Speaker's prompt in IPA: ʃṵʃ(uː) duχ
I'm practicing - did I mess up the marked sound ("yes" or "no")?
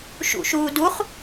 no